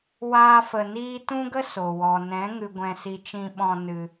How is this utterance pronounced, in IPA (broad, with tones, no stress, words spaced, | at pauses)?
waː˦fə˧niː˦ tũ˦ɡə˦ so˨ wɔ˨nɛ̃˨˦ ŋɨ˧ɡʷɛ̃˧si˧ t͡ʃĩ˧ɓɔ̃˧ nɨ˧